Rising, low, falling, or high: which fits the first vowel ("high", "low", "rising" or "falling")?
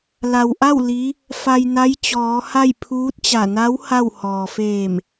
low